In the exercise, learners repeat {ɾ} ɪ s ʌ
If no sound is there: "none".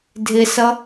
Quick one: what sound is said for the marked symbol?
dʱ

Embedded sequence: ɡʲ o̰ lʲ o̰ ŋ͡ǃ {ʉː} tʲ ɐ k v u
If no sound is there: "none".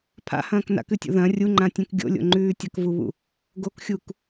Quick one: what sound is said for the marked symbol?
ʉː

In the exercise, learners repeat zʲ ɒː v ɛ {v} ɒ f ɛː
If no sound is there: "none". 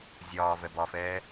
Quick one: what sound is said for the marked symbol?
b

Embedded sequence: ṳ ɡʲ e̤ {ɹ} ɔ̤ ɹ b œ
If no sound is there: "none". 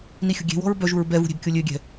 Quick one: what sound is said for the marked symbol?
w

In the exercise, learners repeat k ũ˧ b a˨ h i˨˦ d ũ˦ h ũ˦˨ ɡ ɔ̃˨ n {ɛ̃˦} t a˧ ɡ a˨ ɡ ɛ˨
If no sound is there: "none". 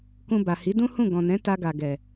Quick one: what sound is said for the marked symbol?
ɛ̃˨˦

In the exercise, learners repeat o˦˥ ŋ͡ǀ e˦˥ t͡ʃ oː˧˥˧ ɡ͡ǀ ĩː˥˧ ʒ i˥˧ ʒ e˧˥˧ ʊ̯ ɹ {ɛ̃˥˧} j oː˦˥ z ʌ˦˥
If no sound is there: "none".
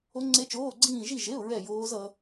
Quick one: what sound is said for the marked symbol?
ɛ˥˧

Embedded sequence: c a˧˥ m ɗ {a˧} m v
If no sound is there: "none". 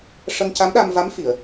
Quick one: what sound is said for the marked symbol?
a˧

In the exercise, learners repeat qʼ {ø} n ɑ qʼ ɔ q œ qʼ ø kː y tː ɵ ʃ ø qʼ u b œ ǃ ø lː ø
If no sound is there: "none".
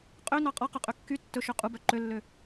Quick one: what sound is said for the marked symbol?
ø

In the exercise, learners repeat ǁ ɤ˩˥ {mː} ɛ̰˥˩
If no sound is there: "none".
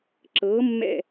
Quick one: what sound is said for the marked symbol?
mː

